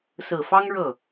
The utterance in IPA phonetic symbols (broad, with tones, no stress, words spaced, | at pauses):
sɹ̩˨˩fɑ˥ŋ ɻɤ˥˩